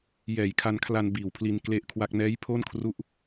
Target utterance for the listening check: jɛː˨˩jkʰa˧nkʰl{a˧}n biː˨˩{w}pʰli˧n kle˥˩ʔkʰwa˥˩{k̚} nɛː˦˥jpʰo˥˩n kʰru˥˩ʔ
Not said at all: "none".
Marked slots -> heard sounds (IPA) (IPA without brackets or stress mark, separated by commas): a˧, w, k̚